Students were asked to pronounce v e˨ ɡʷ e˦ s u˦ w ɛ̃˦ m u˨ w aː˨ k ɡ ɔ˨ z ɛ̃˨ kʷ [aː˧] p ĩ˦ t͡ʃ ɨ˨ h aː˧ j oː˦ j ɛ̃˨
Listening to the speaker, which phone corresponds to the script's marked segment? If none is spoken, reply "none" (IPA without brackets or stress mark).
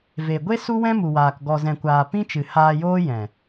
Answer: aː˨